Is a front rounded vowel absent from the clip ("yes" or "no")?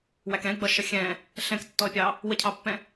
yes